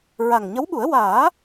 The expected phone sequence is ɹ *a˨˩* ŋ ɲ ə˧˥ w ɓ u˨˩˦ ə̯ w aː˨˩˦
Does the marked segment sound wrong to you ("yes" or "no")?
no